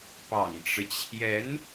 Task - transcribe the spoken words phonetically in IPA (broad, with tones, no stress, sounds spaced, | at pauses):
p ɑ̰˨˩ ŋ ʈ͡ʂ ɻ̩˦ t͡ɕʰ j ɛ˧˥ n